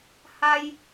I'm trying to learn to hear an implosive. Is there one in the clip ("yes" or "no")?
no